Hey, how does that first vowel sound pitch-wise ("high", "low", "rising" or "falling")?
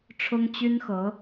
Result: high